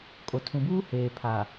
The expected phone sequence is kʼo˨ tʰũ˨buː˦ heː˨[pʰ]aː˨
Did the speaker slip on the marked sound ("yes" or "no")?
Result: no